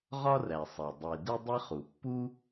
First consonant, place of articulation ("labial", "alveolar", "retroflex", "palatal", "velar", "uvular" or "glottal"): uvular